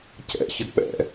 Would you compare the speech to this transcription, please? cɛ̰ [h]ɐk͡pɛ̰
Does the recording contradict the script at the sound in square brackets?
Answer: yes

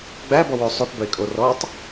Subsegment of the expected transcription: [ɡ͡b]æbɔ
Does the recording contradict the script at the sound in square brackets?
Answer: no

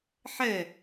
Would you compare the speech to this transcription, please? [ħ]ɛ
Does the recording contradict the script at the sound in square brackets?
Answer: no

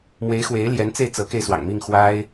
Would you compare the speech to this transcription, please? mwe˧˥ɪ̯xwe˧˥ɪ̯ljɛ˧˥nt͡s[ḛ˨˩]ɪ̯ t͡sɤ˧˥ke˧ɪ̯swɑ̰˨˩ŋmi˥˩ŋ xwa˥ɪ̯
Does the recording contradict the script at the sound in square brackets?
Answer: yes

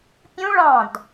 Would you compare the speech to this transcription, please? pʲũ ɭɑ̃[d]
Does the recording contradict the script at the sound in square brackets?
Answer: no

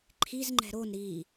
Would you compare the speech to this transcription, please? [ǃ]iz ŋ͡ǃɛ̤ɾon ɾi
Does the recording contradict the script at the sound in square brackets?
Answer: yes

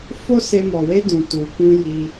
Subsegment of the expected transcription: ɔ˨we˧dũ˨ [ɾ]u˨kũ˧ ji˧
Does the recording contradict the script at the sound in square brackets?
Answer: yes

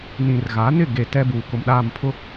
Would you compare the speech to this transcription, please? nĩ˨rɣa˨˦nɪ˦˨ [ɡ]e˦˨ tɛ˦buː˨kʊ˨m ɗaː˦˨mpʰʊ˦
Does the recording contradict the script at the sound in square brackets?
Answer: no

